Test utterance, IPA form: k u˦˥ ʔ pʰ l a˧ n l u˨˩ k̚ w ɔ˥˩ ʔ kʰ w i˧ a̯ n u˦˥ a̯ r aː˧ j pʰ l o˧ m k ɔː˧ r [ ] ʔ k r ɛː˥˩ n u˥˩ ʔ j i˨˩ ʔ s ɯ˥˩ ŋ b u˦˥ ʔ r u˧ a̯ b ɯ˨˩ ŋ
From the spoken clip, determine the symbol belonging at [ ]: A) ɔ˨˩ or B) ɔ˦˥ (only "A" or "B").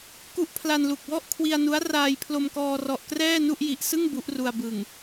A